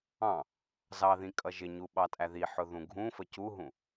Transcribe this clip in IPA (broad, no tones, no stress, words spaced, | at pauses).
ɑ̃ | zɑðĩ kʼʌʒɪɲu ɓɑtʼæðiħʊ ðũɡʱũfə cuɦũ